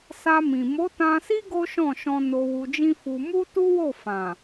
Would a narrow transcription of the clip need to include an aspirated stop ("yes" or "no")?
no